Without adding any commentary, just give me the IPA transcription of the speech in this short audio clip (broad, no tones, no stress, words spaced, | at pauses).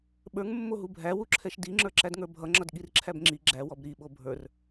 ɓə˞ŋmːoɦu bʱæwuǁʰɛʃ diŋ͡ǁə˞ ǁædŋə˞bʱʌ ŋ͡ǁʌdɠirǁʰæbŋ͡ǁi ɡ͡ǁæwɔb ɾiɓo bʱə˞r